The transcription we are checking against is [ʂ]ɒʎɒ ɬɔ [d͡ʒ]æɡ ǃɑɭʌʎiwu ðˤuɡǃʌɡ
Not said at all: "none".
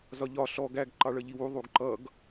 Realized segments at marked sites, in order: z, ɡ

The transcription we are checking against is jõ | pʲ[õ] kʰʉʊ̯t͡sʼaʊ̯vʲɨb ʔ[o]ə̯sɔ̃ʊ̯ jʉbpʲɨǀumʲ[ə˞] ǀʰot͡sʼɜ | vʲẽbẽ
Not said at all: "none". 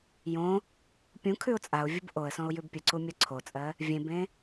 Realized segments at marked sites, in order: ũ, o, ɜ

